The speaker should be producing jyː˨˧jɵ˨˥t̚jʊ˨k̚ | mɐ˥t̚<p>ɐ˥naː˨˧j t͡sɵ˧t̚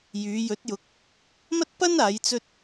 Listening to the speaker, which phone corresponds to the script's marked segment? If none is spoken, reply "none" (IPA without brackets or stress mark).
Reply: p